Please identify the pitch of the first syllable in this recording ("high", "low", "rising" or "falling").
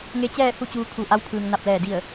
rising